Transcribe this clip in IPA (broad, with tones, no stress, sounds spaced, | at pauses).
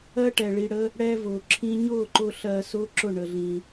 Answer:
ɜ˦ ʈ ɛ˨ ɭ i˧ ɽ ə˦ | ɽ ɛː˧ v ʊː˨ ǁʰ ĩ˦ ɲ ʊː˦˨ ǃ ʊ˧ ɬ ɜː˧ s ʊː˦ ǁ ʊ˦˨ ɳ ə˧ ɮ ĩ˧